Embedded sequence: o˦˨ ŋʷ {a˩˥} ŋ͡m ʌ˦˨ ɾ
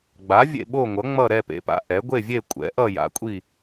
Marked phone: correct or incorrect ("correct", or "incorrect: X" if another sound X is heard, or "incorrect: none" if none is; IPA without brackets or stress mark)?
incorrect: ʌ˩˥